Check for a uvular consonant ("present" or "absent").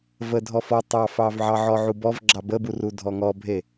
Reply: absent